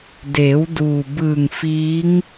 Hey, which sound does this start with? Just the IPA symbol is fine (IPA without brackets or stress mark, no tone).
d